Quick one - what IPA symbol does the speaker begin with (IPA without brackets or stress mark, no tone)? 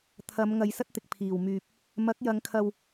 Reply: t̪ʰ